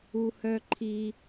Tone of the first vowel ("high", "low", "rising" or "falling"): low